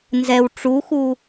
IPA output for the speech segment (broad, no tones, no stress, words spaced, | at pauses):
nzɛw ʈ͡ʂuxu